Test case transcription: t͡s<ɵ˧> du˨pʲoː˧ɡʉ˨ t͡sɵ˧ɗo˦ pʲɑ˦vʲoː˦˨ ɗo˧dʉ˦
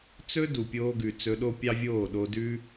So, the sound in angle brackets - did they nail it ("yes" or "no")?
no